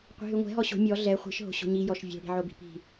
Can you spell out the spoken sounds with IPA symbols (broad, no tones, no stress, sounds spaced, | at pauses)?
qʷ i̤ ɦ y ŋʷ ɛ̤ ɦ ɔ ɕ o̤ mʲ ɔ ɮ ɛ χʷ i̤ ʃ ɦ o̤ ɕ o̤ ɲ i j ɔ ʃ vʲ o̤ ɽ i̤ ʕ o b i̤ p i̤